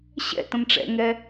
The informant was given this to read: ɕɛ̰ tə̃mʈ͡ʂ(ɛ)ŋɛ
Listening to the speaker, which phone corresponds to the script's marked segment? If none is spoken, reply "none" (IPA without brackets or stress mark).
ɛ̰